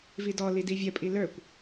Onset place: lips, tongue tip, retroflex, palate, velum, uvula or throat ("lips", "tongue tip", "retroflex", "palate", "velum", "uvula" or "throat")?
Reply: lips